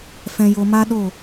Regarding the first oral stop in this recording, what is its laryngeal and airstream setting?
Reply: implosive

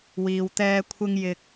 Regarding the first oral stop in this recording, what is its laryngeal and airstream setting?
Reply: plain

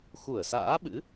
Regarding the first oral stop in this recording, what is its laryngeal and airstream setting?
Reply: implosive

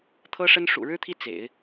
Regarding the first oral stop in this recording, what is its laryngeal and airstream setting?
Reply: aspirated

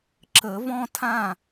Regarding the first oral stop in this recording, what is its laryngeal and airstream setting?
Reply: click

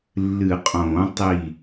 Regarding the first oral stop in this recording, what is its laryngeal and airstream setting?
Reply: ejective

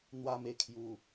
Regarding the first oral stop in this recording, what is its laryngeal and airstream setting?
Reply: aspirated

